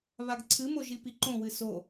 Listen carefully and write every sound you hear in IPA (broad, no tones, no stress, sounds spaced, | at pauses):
β a ɡ ǀʰ ɨ m o ʒ i p i ǃ õ w ɨ s o